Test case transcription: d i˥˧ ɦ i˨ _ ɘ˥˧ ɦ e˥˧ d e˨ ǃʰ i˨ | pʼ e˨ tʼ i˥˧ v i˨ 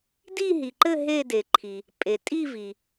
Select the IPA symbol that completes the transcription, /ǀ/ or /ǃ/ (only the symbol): ǃ